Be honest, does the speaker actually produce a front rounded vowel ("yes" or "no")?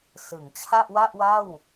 no